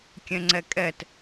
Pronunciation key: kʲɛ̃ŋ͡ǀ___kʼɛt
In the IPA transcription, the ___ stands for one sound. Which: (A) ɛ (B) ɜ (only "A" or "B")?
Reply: A